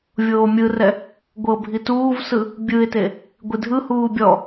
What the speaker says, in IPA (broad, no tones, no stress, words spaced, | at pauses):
vʲoːmʲɯrɛ | ɡʷɤ bʱituːvsɯ | bʲɯɪ̯te | ɡʷidʱɯhuː bʲɔ